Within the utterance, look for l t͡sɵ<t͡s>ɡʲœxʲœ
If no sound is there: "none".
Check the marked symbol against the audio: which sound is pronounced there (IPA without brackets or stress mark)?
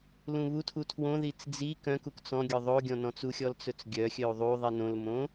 t͡s